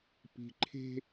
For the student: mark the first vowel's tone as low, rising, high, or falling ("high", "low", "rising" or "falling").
low